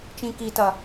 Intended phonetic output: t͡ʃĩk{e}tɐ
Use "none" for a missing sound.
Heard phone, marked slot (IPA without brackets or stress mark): i